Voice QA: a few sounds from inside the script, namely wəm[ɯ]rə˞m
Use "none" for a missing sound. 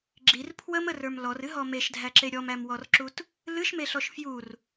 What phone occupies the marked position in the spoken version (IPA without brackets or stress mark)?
ə